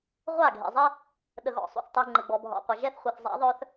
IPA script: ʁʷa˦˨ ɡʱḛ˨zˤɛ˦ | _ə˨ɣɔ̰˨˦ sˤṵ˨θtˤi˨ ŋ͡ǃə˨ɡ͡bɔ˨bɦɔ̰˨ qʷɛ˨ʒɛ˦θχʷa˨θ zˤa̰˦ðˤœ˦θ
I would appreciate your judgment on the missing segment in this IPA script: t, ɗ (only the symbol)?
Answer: ɗ